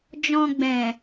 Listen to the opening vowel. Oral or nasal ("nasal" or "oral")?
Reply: nasal